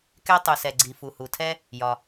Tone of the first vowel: high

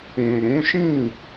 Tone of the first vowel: low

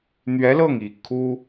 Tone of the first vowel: rising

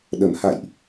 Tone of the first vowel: low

